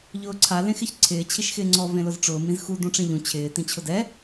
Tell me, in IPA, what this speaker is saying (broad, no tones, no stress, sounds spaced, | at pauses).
ʎ ʊː ǀʰ a l ẽ x ɪ ç ǀʰ ɪː t͡ɕʰ i ʃ x ɪː ŋ͡ǀ ɔ v ẽ l ʊ z ʈ͡ʂ ʊː m ĩ z x u d ũ ʈ͡ʂ ẽ ʎ ũ t͡ɕʰ ɪː t ĩ t͡ɕʰ ʊ d ɛ